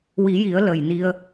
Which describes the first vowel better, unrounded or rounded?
unrounded